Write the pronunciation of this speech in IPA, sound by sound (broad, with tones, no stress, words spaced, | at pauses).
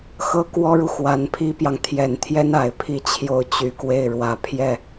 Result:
xɤ˥kwɔ˥ɻu˨ xwa˧˥npʰi˥pjɑ˨ŋ t̪ʰjɛ˨˩nt̪ʰjɛ˥n a˨˩ɪ̯pʰi˥˧t͡ɕʰjo˥˩ʊ̯ t͡ɕy˨˩kwe˥˩ɪ̯ ɻwä˨˩pʰjɛ˥˩